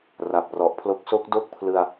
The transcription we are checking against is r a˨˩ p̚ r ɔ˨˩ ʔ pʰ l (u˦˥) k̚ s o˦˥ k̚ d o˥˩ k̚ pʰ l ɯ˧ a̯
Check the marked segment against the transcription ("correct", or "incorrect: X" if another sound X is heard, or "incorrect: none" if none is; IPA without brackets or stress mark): incorrect: o˦˥